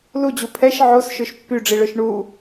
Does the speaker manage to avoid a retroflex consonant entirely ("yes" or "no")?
no